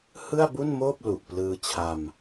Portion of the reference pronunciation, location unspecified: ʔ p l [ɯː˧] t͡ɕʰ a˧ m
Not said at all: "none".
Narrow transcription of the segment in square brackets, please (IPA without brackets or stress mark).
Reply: ɯː˧